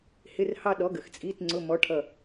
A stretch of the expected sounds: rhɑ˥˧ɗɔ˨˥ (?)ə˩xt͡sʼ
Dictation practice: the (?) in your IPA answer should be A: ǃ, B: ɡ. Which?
B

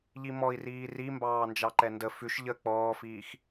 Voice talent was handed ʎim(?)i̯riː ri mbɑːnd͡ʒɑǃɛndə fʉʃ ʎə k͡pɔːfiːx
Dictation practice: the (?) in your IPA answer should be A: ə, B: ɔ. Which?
B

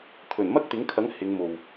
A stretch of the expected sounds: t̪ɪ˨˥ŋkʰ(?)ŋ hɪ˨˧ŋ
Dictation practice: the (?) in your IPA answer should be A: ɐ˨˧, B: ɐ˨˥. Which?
B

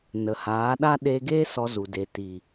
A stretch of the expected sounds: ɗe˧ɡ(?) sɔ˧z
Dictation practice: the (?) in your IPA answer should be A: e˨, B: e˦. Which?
B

